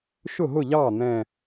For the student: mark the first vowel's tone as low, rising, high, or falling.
falling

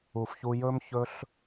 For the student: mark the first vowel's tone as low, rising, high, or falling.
low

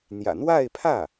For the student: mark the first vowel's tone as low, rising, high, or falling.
low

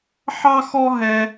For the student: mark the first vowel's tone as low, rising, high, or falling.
high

